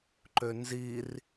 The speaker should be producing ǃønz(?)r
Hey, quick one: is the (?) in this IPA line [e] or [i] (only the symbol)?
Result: i